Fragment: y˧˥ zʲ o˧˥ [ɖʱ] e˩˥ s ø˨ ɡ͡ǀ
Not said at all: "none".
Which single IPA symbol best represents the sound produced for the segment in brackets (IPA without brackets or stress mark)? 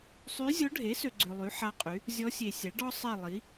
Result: ɖʱ